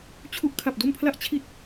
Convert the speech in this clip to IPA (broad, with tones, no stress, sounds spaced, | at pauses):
t͡ɕʰ u˨˩ ʔ kʰ a˨˩ p̚ d o˧ m pʰ l a˦˥ ʔ t͡ɕʰ i˨˩ t̚